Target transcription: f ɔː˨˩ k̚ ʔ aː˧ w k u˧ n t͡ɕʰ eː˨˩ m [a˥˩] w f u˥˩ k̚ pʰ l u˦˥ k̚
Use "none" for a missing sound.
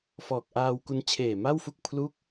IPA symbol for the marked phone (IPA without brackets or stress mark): a˥˩